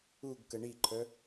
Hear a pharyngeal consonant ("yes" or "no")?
no